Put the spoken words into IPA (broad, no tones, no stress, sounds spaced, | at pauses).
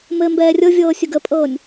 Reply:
m ɘ m b ɛː rʲ ɤ vʲ ɤː sʲ ʊ ɡ ə pʼ ɤː nʲ